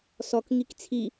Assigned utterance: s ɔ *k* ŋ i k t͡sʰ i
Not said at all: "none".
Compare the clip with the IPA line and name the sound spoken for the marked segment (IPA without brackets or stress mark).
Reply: k